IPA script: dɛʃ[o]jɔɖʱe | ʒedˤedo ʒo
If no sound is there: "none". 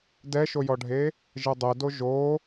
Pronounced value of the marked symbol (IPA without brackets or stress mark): o